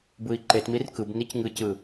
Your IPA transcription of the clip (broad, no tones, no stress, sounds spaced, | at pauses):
b ɯ i̯ ǃ e t m i r k ɯ b n i c ŋ ɯ c ɯ